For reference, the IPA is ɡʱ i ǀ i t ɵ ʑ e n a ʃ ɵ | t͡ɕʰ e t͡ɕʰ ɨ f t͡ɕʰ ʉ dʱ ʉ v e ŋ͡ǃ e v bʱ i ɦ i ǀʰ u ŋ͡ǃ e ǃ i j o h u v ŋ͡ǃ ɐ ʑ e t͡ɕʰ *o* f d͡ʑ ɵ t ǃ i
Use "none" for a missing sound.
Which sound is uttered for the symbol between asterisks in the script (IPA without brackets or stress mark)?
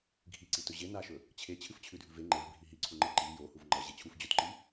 u